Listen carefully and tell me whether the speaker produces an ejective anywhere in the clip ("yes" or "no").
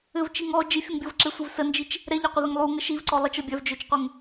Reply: no